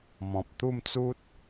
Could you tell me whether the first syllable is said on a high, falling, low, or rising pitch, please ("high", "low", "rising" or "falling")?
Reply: low